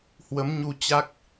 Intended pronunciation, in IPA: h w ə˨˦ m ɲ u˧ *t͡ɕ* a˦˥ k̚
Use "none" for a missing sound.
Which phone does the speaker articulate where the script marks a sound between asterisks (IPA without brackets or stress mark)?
t͡ɕ